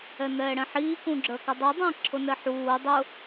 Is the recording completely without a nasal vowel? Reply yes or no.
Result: no